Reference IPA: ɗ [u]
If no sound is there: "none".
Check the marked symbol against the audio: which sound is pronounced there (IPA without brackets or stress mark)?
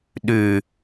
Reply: ʉ